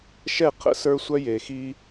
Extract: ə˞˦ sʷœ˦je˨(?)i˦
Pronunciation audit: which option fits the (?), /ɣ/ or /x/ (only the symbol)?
x